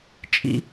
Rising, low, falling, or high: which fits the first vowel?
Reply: high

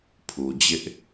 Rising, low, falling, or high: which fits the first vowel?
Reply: low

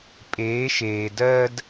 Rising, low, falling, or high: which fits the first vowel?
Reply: rising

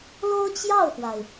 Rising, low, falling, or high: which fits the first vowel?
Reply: high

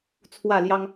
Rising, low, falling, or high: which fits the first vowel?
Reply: falling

